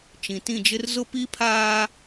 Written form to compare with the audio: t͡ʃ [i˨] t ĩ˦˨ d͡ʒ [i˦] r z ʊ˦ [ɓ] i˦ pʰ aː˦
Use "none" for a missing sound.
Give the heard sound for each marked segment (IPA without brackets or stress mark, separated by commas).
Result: ĩ˨, ɪ˦, p